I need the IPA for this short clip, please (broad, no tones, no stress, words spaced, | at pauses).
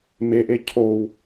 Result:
meʔe cʰow